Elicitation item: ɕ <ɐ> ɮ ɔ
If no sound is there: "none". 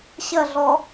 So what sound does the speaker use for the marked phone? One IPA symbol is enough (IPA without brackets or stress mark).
ɐ